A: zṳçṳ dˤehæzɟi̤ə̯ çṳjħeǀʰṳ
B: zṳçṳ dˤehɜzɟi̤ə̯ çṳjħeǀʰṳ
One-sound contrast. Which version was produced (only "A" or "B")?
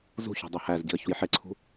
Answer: A